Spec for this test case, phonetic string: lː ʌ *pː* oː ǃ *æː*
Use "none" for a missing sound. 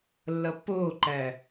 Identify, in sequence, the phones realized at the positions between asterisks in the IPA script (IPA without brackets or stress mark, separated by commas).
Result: pː, æː